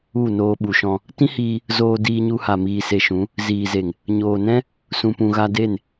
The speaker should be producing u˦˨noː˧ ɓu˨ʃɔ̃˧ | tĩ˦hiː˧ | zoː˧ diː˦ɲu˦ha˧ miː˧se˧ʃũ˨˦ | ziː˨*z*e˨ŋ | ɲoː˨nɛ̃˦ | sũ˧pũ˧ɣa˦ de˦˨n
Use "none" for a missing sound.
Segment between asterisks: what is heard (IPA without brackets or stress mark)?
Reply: z